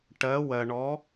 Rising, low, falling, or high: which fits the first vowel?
rising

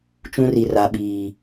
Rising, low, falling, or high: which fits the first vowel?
high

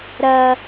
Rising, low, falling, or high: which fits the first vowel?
low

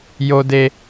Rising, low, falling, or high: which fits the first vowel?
high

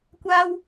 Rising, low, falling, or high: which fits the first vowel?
high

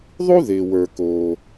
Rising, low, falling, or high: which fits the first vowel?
high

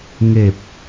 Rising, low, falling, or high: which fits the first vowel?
low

